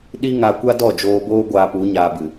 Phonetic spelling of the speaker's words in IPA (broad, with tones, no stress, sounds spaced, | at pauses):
ɗ i˦ ŋ a˧ kʷ a˦ d ɔ˦˨ d͡ʒ oː˧ b oː˦ ɡʷ aː˧ p u˨˦ ɲ aː˧ b ɨ˨